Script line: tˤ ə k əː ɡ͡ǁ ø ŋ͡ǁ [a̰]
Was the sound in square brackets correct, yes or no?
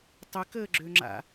yes